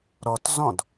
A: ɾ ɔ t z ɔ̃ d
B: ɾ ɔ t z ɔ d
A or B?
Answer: A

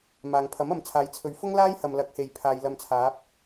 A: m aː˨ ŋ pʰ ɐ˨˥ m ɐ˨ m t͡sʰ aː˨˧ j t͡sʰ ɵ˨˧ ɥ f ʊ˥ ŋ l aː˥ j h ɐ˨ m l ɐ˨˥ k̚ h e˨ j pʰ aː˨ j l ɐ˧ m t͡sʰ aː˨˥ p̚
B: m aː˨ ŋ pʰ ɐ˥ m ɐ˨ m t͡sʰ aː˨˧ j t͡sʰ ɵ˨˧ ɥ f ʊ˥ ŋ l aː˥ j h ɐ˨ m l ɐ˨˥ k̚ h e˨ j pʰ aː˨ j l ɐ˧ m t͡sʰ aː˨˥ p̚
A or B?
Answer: A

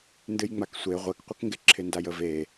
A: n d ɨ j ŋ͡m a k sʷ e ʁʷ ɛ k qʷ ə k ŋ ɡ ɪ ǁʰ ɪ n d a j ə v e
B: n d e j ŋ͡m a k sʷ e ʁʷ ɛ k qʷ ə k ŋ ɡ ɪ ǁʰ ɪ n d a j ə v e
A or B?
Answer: A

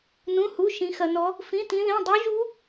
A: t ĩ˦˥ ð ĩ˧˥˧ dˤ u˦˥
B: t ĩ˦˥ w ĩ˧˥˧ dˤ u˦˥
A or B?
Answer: A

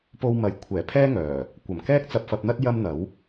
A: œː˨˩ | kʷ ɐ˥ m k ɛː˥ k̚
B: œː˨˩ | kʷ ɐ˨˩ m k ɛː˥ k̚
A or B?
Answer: B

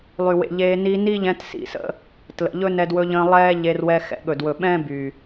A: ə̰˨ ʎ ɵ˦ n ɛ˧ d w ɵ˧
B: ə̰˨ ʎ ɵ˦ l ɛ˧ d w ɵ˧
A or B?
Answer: A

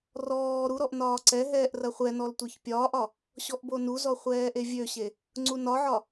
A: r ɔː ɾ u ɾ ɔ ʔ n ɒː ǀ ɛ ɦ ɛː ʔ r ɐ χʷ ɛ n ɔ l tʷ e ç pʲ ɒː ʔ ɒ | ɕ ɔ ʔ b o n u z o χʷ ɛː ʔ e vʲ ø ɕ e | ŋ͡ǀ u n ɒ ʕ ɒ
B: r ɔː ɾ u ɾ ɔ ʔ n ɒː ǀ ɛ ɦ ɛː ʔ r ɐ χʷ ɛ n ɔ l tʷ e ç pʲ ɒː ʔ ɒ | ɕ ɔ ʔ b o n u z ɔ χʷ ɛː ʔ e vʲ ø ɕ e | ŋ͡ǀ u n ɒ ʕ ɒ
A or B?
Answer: B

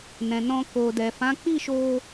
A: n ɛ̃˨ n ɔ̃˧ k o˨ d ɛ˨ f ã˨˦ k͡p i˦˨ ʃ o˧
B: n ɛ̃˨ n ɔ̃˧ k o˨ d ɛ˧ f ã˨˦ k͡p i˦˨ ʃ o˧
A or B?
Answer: A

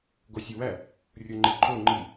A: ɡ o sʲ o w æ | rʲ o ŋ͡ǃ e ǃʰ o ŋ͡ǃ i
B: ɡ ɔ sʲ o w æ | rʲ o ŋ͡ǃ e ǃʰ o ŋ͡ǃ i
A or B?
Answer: A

